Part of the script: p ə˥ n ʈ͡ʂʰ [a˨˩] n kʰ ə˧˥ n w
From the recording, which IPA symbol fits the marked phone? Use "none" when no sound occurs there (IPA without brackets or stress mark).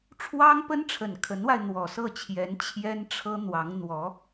ə˨˩